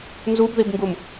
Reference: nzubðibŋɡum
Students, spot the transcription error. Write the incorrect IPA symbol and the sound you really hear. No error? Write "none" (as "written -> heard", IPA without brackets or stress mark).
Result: none